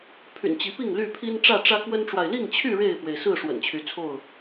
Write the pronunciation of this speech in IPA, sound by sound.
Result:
pʰ y̰˨˩ n t͡ɕ i˨˦ p i˥˨ ŋ l y˥˨ pʰ i˦ n ʈ͡ʂ ä˥˨ ʈ͡ʂ ä˦ k w ə˦ n ʈ͡ʂ w a˨ ɪ̯ l i˥˨ ŋ t͡ɕʰ y˥˨ ɻ e˥˨ ɪ̯ f w e˩ ɪ̯ s ɹ̩˥˨ ʂ w ə̰˨˩ n t͡ɕʰ y˨˦ t͡sʰ o˥˨ ʊ̯

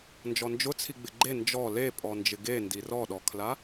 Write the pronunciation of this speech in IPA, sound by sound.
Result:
n d͡ʒ ɔ n d͡ʒ ʊ t͡sʰ i ɡ͡b ɪ ɡ͡ǃ e n d͡ʒ ɔ l e pʼ ɔ n d͡ʒ ɪ ɡ e n d i r ɔ ɗ ɔ kʰ l a

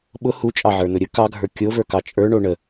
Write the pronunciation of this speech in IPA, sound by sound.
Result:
ɓ ʊ h u t͡ʃʼ ɑ ʕ ə˞ n ʊ ɾʲ ə k ɑ ɡʱ ə˞ kʲ o v ə˞ k ɑ t͡ʃʼ ə˞ ɳ o ɳ ə

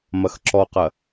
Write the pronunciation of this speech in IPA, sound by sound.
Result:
m ɐ x ǁ ɔ q ɐ

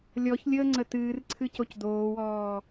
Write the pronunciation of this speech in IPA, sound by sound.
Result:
lʲ ɔ ç lʲ əː ŋ͡ǀ ə t ɨː r ǀʰ ɨ c o c d oː w ɔː

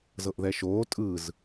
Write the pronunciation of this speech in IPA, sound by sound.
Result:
z ɤ ʔ ð ɛ ʃ oː tʼ ɯ z

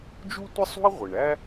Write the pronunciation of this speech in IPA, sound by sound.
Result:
d͡ʒ u˥ tʷ ɪ˥ sˤ ṳ˥ ə̯ ʁʷ ɪ˩ ɳ æ˥

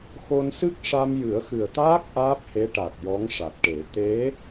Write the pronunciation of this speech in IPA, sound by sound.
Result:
x o˧ n s ɨ˦˥ k̚ ʂ a˧ m j ɨ˨˩˦ ə̯ x ɨ˨˩ ə̯ t̪ aː˦˥ k̚ ʔ aː˦˥ p̚ h e˧˥ ʈ a˨˩ t̚ j ɔ˧˥ ŋ ʂ a˨˩ t̚ ʈ e˨˩˦ t̪ e˧˥

